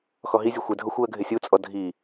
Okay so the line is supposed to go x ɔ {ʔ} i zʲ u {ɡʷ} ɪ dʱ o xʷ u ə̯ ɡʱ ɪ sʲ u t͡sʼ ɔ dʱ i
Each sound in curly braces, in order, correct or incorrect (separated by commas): incorrect, incorrect